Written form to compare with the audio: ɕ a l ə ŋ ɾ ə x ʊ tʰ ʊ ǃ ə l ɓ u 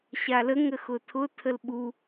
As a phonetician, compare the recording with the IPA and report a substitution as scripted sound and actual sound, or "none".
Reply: ǃ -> tʰ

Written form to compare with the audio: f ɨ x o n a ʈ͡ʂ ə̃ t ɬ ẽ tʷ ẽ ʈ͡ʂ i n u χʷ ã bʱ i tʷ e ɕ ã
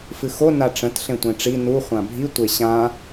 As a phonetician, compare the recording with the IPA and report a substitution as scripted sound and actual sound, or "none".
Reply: none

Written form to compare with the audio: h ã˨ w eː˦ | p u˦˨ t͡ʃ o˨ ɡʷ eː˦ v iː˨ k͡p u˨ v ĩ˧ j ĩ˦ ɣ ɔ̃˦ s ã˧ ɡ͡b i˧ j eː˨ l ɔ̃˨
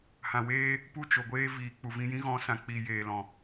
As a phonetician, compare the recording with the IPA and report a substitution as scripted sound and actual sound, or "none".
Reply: ɡ͡b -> k͡p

